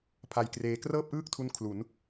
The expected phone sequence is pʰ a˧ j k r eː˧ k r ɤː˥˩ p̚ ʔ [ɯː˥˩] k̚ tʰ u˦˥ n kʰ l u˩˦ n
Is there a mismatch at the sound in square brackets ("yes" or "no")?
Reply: no